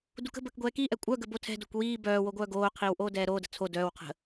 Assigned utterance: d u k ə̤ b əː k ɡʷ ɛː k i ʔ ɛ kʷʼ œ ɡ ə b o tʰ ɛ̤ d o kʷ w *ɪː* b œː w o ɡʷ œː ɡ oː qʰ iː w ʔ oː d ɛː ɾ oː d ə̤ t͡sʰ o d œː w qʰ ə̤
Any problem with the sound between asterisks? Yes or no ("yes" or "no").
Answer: yes